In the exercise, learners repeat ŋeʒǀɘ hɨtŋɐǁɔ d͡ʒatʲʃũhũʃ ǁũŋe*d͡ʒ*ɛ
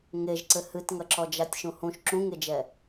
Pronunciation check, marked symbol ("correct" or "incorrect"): correct